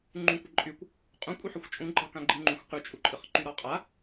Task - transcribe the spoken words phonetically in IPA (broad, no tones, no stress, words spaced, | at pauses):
ŋ͡ǃũkʷəǃʼykʷ | qʼũkʷʼɯ ħɯxʷt͡ʃʼũɡ͡ǃɑkã ɡ͡ǃɨŋ͡ǃũxʷ qyt͡ʃʼuǃʼɨχǃy ɾɔqʼa